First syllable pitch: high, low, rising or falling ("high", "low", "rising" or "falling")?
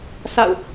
falling